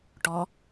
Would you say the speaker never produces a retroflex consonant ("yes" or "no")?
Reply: no